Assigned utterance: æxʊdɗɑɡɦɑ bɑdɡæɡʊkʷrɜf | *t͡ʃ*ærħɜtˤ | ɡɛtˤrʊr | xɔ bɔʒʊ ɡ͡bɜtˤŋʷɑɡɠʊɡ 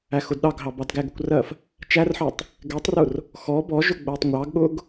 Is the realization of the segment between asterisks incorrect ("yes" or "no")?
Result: no